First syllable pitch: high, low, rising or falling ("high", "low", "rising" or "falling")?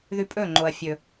high